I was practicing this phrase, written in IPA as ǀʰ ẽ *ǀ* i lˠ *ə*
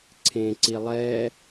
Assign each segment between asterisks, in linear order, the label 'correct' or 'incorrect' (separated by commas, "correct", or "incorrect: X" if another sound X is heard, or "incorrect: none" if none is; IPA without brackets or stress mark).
correct, incorrect: ɛ